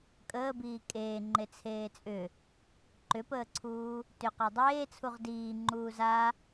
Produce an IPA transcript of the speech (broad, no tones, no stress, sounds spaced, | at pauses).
kʼ əː b iː kʼ eː ŋ͡ǃ e t͡sʰ eː t͡sʼ ʏ | ǃ ʏ p əː ǀʰ uː | t ʏ q a dˤ eː t͡sʰ u ʁ d iː ŋ͡ǃ uː z a